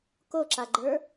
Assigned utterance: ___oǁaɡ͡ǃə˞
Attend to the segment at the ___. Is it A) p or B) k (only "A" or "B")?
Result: B